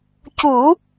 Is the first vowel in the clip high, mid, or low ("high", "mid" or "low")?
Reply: high